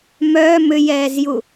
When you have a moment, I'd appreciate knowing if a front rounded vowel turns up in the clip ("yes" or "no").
yes